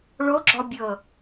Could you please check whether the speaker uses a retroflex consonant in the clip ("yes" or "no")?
yes